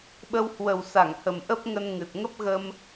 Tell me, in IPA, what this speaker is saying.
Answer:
ɓə˧w hwə˨˩wsa˧˩ŋhə˨˩m ʔə˦˥p̚ŋə˧n ŋɨ˨˩t̚ ŋə˦˥p̚ɣə˧m

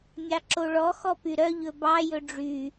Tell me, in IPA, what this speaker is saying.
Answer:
mʲɑǁoɭɔ xɔpyɾœ ʎɵbɑ jɵɖ͡ʐy

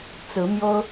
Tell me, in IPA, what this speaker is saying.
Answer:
t͡sɹ̩˧˥mjo˥ʊ̯

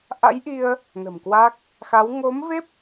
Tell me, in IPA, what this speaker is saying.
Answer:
ʔa̰˧˥jʔi˧ə̯ | nə̤˨˩m kwa˦˥k̚ | xa˨˦w ŋo˨˦mve˦˥p̚

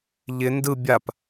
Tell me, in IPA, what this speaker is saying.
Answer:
ʎɪ ndɯ bʲap

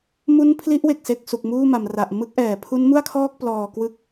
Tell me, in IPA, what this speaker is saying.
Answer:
mu˦˥n pʰli˦˥ʔwe˨˩k̚se˨˩k̚ su˨˩k̚muː˥˩ma˩˦mra˨˩ʔ mɯ˦˥k̚ʔɛː˩˦ pʰu˦˥nmu˥˩a̯kʰɔː˥˩k̚ plɔː˨˩ kwɯ˦˥k̚

